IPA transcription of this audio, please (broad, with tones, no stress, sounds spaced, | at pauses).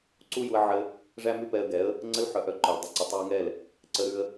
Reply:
ǀ u˦ j u˧ ə̯ ʕ ɘ˧ | ʐ æ˦ m ʉ˦ p ɛ˧ ə̯ ɡ ɛ˨˦ ə̯ | ŋ͡ǀ ə˦ l ħ œ˧ ʔ œ˧ ǃ œ˨ l dˤ ə˧ ǀ ə˨ tˤ ʉ˧ ə̯ ŋ ɛ˦˨ l | ǀ ə˦ ɾ ʉ˦ ə̯